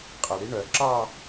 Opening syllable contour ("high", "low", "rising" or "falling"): low